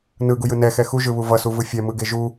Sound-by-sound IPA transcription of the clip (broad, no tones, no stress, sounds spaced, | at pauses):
n ɯ ɡ u j ɯ n ɛ x ɛ x u ʒ ɯ β u v ʌ s u v ɯ fʲ ɛ m ɯ ɡ e ʒ u